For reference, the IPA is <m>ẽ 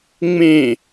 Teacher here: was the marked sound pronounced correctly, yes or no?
no